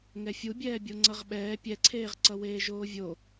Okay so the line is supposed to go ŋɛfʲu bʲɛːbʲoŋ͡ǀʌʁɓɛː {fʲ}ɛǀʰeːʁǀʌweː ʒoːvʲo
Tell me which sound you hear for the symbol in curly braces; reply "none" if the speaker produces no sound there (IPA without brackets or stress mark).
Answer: pʲ